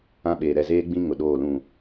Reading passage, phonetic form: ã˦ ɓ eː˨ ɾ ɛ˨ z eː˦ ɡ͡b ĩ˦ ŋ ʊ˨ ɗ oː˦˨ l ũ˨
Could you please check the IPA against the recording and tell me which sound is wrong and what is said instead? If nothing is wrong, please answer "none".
none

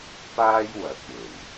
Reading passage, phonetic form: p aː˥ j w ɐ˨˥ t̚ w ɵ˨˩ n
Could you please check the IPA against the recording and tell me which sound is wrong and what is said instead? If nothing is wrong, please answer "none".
none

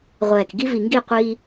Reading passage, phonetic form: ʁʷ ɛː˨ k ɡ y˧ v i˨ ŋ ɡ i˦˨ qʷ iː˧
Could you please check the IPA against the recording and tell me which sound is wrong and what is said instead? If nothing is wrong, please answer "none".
y˧ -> i˧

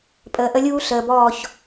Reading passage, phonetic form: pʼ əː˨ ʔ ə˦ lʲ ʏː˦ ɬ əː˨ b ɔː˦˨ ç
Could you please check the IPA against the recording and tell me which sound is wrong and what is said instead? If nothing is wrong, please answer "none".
ʏː˦ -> uː˦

